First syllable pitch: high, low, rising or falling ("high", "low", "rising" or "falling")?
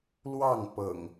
falling